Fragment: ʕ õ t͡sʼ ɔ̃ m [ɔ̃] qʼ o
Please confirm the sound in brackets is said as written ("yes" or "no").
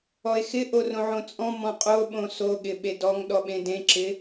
yes